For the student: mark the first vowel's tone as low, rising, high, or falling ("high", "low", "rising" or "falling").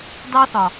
high